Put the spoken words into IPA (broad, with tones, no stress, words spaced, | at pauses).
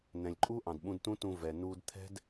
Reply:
nɛ̃˩lʲǃʼu˥ ʔɑ̃˩dɓũ˧dtũ˥tũ˧ vɛ˩nuː˧dt̪ʰɛ̤˥d